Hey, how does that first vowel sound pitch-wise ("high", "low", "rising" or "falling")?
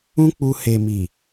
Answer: high